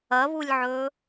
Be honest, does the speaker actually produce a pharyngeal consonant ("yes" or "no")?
yes